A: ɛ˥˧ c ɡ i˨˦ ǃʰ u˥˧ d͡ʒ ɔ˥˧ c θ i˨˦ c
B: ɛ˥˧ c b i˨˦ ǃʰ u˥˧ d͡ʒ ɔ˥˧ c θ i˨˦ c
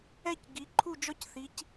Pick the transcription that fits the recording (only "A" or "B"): A